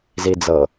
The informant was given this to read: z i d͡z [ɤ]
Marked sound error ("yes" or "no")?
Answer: no